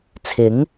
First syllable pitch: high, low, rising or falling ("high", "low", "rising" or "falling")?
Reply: rising